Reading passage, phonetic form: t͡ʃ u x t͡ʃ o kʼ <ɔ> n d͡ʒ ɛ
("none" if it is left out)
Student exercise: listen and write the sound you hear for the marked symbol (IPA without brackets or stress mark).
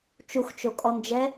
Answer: ɔ